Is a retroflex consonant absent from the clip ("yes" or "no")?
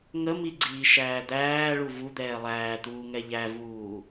no